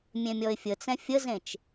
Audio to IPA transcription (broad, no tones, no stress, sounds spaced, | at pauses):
mʲ ẽ mʲ ɔ ɪ̯ fʲ ə t͡s ɛ̃ fʲ ə z ẽ t͡ʃ